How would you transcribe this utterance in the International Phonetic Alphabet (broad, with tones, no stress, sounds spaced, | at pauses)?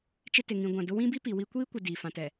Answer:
t͡ʃ ɪ˦ t ɪ˨ ŋ ĩ˨ ɡʷ ã˨ d ʊ˦ w ĩ˦ b i˦ p i˨ w i˦ kʷ iː˦ kʷ ɪ˨ d i˨ f ã˨ t ɛ˨